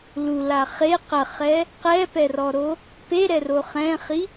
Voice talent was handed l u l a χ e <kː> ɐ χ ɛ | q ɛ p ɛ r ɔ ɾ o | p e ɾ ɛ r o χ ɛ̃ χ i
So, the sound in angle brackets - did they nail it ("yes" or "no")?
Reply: no